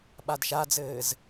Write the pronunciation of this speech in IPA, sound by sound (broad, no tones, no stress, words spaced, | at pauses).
ɓadʃad͡zɘːz